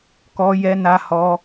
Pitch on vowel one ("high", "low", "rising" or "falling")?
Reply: high